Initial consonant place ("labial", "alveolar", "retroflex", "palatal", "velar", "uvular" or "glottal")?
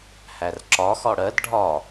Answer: glottal